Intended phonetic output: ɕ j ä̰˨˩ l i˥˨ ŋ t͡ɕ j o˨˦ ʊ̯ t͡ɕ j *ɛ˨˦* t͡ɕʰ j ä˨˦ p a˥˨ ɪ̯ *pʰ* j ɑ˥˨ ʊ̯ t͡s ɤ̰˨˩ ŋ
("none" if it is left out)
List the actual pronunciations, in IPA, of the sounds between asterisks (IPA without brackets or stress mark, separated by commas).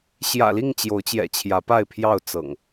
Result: ɛ̰˨˩, pʰ